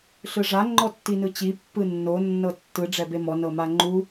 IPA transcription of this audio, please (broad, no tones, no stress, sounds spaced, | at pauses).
ɬ ɯ ʐ a ŋ͡ǃ ɔ tː i n ɯ t͡ɕ i pː ɯ nː o nː ɤ tː ɯ ɖ͡ʐ ɛ b e m ɔ n ɤ m a ŋ͡ǃ u